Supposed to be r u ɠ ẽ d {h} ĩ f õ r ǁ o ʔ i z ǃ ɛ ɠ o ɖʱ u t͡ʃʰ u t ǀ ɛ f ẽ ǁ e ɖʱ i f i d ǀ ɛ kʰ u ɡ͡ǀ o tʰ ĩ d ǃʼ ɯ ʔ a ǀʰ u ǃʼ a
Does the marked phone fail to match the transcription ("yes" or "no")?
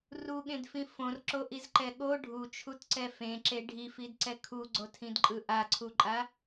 yes